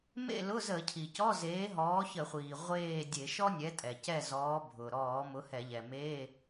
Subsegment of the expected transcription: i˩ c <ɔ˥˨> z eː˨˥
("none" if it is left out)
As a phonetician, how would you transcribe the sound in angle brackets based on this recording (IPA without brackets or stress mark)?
ɔ˧˥˧